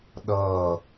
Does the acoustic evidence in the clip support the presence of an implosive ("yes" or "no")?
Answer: yes